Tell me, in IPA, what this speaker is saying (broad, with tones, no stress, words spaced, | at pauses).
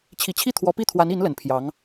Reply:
t͡ɕʰi˨˩t͡ɕʰi˥˩ t̪ʰwɔ˧˥pi˥˩t̪ʰwa˧˥ni˧˥n lə˨˩npʰjɑ˧˥ŋ